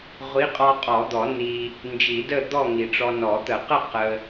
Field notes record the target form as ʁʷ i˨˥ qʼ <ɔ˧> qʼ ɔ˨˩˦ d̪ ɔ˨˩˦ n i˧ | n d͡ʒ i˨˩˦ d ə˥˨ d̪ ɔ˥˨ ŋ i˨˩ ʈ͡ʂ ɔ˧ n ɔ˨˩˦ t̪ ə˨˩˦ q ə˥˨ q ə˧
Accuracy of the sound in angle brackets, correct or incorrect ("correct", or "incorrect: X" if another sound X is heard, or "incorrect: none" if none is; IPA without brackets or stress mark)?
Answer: correct